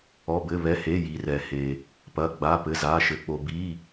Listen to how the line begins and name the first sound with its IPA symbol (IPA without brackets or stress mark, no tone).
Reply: ɔ